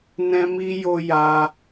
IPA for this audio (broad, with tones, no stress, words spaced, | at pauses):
nɛ̃˦mi˦jo˦ ja˧